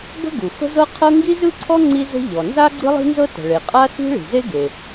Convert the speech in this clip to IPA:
bə̤˥ ɡu˩fə̤˥zɤ˥ qʰɤ˥ ŋɡi˥zɯ˥ǀʰɔ˥ ŋ͡ǀi˥zə̤˥ ʎɔ˩ nza˥ ɡ͡ǀɯ˥lˠi̤˥nzɤ˥ tə̤˩ɭe˩ qʼa˥si̤˥ ɭi̤˩ze˥ɡe˩

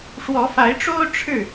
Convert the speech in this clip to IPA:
ʂwɔ˨˦fa˨˦ɪ̯ʈ͡ʂo˦ʊ̯ ʈ͡ʂʰɻ̩˥˨

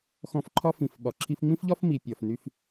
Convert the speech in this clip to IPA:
xɔ̃˧fǃʰɒ˥ fĩ˩fɓɒ˩ǁʰi˧f ŋ͡mĩ˥fʎɒ˥f mi˩pʲɒ˩f ny˧f

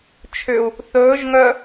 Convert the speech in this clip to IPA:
t͡ʃʰʏu̯ | θɵːʒ ŋœ

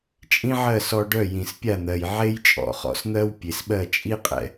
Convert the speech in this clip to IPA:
t͡ʃʼĩ˥ʕɜ˥˩sɔ˧ ɖœ˥˩ jĩ˩spʲa˥˩n̪ɜ˩j ʕe˥jt͡ʃʼɔ̰˩χɔ̰˩˥sn̪ɜ˥w pʲe˩sɓɜ˥˩ t͡ʃʼi˥qʼɛ̰˧

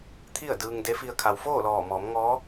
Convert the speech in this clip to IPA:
t̪ʰi˥˨ə̯dɯː˧ŋ de˧˥fi˧ə̯ kʰa˩wfoː˥˨ lɔː˧˩mɔː˩˧mŋɔː˧˥

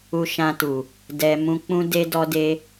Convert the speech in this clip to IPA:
u˧ʃã˧tu˨ | dɛ˧ mũ˧ k͡pũ˦de˦dɔ˦de˦

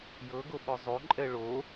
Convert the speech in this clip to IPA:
jɤɡoɓɔ zˤoǃʼɛ ɭo

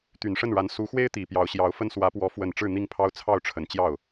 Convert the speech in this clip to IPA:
t̪y˨˩nʂə˥˩nɻa˧˥n su˧˥ xwe˥ɪ̯t̪i˨˩ pjɑ˧˥ʊ̯ɕjɑ˧˥ʊ̯fə˥n swä˧˥pwɔ˧˥ fwə˨˩n ʈ͡ʂɻ̩˥˧ n̪i˥˩ŋpʰɑ˥ʊ̯ t͡sʰɑ˥˩ʊ̯ʈ͡ʂʰə˨˩n t͡ɕjɑ˥˩ʊ̯

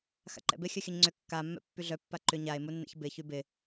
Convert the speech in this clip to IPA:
xa̰ǃɛ̰bɪ xʲœxʲœɲŋ͡ǀʏ kːamːɛ̰ pːyɮœ pːaǃʏ ɲae̯munːɛ̰ç bɪçy bɪ

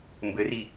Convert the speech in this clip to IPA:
mbɘri

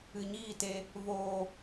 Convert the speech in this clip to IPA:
ɨ˨ɲiː˦˨te˧ | voː˨

